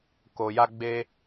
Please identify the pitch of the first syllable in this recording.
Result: low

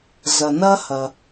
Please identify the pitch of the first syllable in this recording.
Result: low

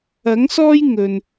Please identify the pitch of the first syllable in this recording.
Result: rising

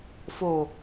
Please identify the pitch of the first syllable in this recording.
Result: low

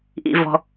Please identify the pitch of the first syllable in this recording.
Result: high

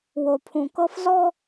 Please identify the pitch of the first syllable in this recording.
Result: low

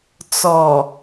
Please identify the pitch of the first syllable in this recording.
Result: low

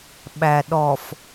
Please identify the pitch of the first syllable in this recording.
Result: low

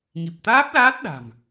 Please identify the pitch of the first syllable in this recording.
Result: low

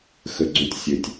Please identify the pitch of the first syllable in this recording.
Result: low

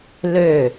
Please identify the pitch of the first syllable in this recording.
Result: falling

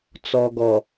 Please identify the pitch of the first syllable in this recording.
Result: low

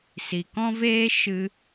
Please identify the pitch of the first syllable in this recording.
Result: low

